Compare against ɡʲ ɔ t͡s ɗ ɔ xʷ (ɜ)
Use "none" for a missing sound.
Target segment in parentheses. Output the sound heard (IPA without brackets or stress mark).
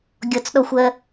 ɜ